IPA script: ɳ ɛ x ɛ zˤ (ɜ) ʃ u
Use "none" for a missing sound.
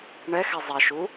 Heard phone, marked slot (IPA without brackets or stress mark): ɛ